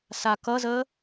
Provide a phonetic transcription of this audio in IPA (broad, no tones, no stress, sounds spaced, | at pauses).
s a k ʌ z əː